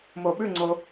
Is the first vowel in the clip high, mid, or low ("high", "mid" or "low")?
mid